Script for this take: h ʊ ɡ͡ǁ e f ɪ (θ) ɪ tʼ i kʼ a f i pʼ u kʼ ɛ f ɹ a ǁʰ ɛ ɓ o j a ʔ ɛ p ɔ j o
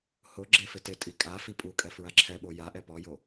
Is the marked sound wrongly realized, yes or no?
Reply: yes